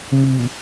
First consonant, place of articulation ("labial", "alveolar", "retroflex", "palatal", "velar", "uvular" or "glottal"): labial